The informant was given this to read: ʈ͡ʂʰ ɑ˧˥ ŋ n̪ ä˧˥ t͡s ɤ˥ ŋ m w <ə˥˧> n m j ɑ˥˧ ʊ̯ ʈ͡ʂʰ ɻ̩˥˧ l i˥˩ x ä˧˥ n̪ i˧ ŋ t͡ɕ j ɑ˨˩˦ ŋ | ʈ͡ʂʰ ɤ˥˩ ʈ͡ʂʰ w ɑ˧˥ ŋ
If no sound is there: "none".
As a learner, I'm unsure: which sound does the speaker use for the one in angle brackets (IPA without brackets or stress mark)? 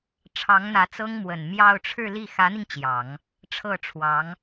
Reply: ə˨˩